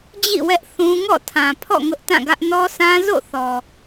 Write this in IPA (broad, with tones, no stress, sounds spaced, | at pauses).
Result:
d͡ʑ ḭ˦˨ w ɛ˦ ʔ θ ũ˦ ŋ ɔ̰˦˨ tʰ ã˨ pʰ ɔ̰˦˨ ŋ ʊ˦ ʔ t ã˦˨ ɡ ä˦ ʔ n ɔ˦ s ã˦ z o̰˦˨ θ ɔ˨